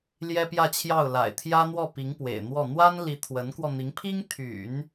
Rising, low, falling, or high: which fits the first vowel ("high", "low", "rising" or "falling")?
high